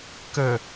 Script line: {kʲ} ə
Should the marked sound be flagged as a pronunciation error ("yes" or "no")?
yes